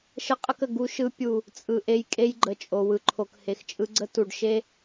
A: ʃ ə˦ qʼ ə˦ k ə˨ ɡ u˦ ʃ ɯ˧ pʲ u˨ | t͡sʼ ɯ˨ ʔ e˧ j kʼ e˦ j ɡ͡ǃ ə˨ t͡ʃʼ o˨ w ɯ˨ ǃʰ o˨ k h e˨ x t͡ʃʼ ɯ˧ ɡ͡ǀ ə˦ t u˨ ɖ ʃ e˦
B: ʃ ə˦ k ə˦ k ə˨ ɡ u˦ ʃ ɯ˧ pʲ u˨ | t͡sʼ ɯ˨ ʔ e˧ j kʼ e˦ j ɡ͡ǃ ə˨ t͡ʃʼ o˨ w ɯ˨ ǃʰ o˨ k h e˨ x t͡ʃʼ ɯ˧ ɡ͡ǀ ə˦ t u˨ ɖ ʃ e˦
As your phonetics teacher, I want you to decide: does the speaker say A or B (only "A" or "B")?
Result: A